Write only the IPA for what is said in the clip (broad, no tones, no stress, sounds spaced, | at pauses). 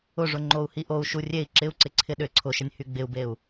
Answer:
ʊ ʐ ʊ ŋ͡ǃ o u̯ h i ʔ o u̯ ʃ u rʲ e i̯ ǁ ɪ u̯ ǀ ɪ ǀʰ ɪ ɗ ʏ ǀʰ ʊ ʃ ə nʲ h y ɡ͡b ɪ u̯ b e u̯